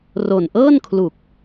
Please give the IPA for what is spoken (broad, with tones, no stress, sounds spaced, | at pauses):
r o˨˩ n ʔ ɤː˥˩ n kʰ l u˨˩ k̚